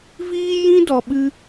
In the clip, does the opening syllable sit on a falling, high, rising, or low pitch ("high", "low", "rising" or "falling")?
high